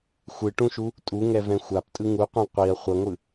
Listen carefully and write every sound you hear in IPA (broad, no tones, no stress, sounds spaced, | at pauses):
xʷ ɯ ʈ ũ ʃ u | tʼ u ŋ ɛ v ɛ̃ xʷ a p tʼ ɯ ŋ u qʷ ẽ qʷ i ɐ̯ χʷ ʌ ŋʷ ɯ